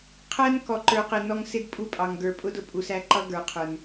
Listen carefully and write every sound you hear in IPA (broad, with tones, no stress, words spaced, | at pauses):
qʰæ˦n kɔ˨ǃə˞˨qɪ˨ nɔ˦ŋ sɪ˦dpʼu˦˨ pʼɑ˨ŋ ɡə˞˨pʼʊ˦d ʊ˦˨pʼu˨s æ˦ǃʌ˦ɡə˞˨˦ qʰə˞˦n